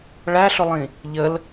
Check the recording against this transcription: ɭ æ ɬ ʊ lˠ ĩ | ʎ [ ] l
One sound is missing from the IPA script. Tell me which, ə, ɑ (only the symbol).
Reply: ə